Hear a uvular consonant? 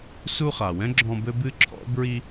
yes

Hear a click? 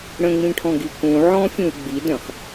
no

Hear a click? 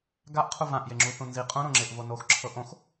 yes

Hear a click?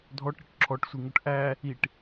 yes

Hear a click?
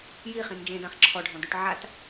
yes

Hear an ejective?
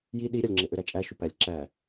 yes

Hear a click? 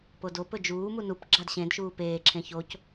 yes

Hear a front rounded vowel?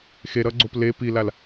no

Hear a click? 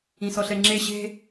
yes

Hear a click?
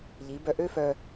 no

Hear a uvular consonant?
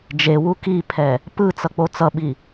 no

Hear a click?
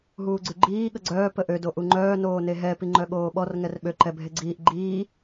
yes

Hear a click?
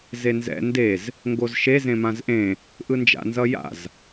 no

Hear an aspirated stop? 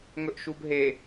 no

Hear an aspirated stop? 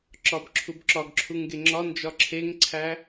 yes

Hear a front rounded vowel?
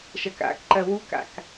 no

